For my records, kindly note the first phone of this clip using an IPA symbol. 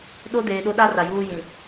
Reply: ɗ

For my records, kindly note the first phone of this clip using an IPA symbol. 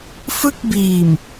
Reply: f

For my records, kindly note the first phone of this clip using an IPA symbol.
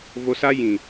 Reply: v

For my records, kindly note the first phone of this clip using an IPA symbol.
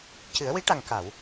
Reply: c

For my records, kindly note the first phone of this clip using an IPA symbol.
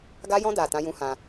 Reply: ɡ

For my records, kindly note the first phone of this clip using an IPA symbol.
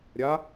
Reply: ɾʲ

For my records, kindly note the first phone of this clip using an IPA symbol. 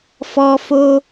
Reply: f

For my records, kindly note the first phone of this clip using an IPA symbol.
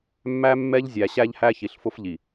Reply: mː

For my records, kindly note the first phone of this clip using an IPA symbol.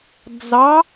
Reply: d͡z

